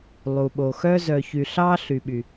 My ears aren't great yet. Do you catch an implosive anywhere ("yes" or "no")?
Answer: yes